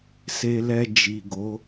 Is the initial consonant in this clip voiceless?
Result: yes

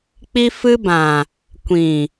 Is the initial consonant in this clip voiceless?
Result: yes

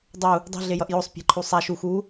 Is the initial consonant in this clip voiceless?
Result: no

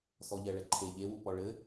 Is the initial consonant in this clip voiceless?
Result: yes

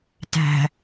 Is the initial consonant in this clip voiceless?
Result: yes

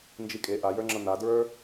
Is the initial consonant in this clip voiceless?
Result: no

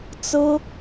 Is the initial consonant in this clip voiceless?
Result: yes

